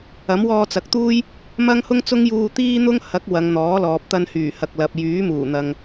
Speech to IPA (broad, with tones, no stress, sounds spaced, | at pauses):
ɐ˨˥ m w ɔː˧ t͡s ɐ˨ k̚ t̪ uː˥ j | m ɐ˥ ŋ h ʊ˥ ŋ t͡s ʊ˥ ŋ j uː˧ t̪ iː˥ n̪ ʊ˥ ŋ h ɐ˨˥ k̚ w ɐ˨˧ ŋ n̪ ɔː˨˥ l ɔː˨ p̚ t̪ ɐ˧ n h yː˨˩ h ɐ˨ k̚ l ɐ˨ p̚ j yː˨˥ m uː˨˩ n̪ ɐ˨ ŋ